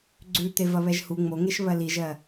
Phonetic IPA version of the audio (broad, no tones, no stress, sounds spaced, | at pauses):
ɡ͡ǀ ʉ t̪ e v ɐ β ɛ ʒ h u ŋ͡m o ŋ e ʃ β ɜ l i ʒ ɜ